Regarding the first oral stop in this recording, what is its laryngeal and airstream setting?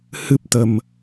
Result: plain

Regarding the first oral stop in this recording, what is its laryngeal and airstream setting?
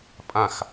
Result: ejective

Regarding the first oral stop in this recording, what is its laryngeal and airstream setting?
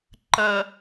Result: click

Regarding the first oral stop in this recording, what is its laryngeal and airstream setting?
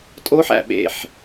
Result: ejective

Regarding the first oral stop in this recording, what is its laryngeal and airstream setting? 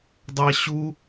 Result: plain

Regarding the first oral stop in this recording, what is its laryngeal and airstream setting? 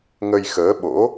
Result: implosive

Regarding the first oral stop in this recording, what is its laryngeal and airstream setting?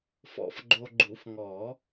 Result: click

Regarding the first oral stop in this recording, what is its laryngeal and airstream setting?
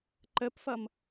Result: click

